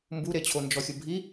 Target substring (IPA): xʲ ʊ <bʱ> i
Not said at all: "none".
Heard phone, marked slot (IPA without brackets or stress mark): bʱ